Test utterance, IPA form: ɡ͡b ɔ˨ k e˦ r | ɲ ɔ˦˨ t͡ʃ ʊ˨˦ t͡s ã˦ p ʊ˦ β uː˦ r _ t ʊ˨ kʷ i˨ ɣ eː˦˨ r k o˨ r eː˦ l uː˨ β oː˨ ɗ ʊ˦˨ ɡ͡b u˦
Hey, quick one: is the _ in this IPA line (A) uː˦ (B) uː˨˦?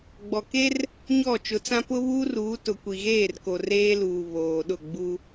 B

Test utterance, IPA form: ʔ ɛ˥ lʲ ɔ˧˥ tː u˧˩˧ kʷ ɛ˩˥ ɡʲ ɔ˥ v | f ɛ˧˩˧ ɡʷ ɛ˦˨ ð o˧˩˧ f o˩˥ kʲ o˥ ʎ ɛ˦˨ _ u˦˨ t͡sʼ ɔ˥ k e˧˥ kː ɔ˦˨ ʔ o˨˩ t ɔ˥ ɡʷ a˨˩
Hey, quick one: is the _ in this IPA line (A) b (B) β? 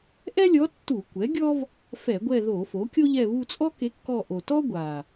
B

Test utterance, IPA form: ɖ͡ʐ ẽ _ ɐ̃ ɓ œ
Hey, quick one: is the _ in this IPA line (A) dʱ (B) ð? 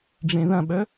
B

